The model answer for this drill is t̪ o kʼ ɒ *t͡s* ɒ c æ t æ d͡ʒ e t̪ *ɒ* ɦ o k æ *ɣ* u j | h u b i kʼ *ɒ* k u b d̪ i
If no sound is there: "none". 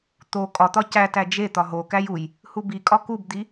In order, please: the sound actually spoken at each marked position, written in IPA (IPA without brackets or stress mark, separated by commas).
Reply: t̪, ɒ, j, ɒ